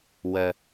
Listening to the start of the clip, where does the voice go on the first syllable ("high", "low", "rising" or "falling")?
high